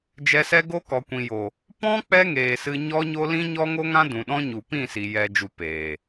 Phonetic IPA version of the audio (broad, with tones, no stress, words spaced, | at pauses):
d͡ʒɛ˧sɛ˦ɡo˦ kɔ˨ kʷĩ˨jo˨ | pɔ̃˦ k͡pɛ˦ŋeː˨ sɨ˧ɲɔ˦ɲo˦ lĩ˦ɲɔ˦ŋo˦ŋã˦ dũ˨ɗɔ̃˦ɲu˨ pĩ˦˨ si˨ jɛ˨d͡ʒu˨ peː˨